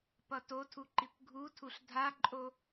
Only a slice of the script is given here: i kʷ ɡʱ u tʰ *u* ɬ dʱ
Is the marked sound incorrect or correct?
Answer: correct